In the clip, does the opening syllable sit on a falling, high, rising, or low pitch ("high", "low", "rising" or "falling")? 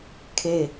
falling